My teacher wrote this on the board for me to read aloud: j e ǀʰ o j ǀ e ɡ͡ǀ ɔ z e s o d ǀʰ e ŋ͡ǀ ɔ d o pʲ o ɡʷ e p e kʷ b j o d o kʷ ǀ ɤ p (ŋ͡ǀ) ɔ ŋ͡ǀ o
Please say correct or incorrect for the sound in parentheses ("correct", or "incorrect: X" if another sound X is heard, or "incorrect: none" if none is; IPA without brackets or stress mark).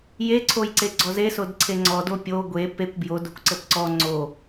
incorrect: ǀ